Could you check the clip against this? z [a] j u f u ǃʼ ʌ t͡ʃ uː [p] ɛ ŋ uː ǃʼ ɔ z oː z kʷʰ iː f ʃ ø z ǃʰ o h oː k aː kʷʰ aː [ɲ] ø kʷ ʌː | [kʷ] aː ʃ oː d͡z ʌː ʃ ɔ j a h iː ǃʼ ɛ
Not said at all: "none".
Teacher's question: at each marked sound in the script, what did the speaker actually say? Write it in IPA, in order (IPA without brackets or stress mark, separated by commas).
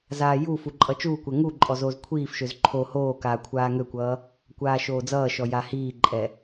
aː, kʷ, ŋ, kʷ